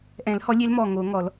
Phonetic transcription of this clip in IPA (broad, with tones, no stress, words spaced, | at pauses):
ʔɛ̃˨˩˦lhɔ˨˥lʲe˨˥l mɔ˧˩ŋo˨˩˦ ŋɔ˨˩˦l